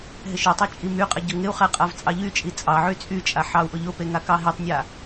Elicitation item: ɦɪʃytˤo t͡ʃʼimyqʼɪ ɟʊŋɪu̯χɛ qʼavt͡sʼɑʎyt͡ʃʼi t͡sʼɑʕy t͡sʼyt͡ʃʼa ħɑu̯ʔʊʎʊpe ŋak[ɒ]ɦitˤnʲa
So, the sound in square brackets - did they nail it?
no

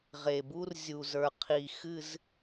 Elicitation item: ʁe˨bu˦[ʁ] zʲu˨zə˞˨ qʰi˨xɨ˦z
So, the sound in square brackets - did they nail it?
no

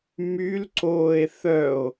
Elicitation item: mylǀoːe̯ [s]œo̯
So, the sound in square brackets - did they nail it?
no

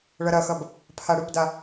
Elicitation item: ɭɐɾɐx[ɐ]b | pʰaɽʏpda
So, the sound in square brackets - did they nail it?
yes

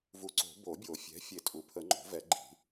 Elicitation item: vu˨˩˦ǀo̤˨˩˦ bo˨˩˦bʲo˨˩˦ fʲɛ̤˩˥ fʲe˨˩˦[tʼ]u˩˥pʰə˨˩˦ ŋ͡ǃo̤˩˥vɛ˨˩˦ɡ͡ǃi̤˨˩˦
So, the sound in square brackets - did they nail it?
yes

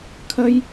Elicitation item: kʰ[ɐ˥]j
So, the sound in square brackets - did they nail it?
yes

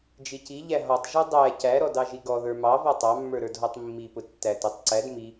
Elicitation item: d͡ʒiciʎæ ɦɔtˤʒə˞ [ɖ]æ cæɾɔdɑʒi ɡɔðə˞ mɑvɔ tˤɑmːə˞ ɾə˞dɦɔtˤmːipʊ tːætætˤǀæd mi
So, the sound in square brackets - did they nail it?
no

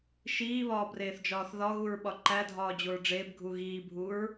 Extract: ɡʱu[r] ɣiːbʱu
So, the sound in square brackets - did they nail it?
no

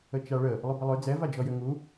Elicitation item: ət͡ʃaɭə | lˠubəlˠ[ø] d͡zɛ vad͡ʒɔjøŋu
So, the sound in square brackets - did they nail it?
yes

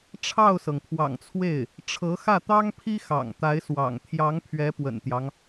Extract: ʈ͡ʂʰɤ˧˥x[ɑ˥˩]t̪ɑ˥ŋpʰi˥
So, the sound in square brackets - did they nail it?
no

